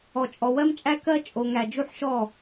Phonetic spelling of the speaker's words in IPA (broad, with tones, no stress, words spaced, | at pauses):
ɔ˨t͡ʃʼɔ˨wɜ˦mt͡ʃʼæ˦ kɜ˦ t͡ʃʼo˨ŋæ˨ d͡ʒu˦ħʃɔ˦˨